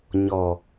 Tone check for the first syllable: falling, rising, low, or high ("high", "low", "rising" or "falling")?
low